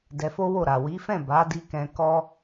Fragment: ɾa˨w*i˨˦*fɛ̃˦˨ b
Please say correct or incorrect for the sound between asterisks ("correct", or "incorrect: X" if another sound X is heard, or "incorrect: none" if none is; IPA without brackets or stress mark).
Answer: correct